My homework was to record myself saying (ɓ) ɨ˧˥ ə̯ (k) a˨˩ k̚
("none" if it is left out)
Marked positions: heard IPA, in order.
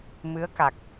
m, k

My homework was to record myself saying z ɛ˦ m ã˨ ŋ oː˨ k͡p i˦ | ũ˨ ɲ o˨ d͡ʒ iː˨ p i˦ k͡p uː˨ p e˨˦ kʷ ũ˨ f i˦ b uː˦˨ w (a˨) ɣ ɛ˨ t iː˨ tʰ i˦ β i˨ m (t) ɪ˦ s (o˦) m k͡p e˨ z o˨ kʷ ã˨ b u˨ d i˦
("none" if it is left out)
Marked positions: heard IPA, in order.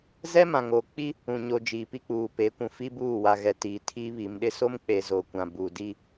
a˨, ɗ, o˦

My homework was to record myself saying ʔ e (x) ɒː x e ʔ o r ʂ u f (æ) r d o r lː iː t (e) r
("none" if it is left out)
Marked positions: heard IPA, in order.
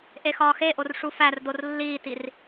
x, æ, i

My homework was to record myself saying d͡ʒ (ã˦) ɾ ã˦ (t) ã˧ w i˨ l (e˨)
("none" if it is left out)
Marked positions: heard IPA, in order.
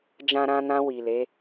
ã˦, n, e˨˦

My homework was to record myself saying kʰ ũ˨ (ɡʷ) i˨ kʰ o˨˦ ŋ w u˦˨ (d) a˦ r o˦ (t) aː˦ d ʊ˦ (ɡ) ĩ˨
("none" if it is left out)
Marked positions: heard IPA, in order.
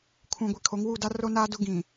ɡʷ, d, n, ɡ

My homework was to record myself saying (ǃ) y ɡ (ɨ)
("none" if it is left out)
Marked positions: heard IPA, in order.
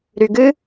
ɾ, ɨ

